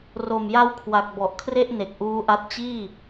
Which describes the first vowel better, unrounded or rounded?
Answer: rounded